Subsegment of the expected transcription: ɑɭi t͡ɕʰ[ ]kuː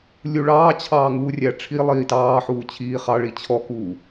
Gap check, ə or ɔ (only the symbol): ɔ